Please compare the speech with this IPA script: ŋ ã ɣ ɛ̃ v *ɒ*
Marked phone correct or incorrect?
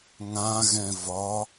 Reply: correct